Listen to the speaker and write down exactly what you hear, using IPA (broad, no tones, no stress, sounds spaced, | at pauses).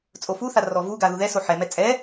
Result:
t͡sʼ o f u θ a r ɔ v u ɡ a ð u ð ɛ s o ħ ɛ m ɛ t͡sʼ ɛ